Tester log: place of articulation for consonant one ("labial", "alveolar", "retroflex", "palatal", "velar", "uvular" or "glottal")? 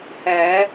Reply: glottal